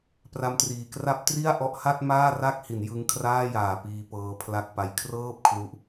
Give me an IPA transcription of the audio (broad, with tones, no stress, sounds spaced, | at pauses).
p r a˦˥ m t r iː˨˩ k r a˦˥ p̚ t r i˥˩ a̯ ʔ ɔ˦˥ ʔ h a˥˩ t̚ m aː˥˩ r a˥˩ k̚ h i˩˦ n j ɯ˦˥ ŋ kʰ r aː˥˩ j aː˨˩ p iː˧ p ɤː˧ pʰ l a˦˥ k̚ p a˧ j kʰ r ɤː˥˩ p̚ kʰ l u˦˥ ʔ